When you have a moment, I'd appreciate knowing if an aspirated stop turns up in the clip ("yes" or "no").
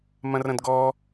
no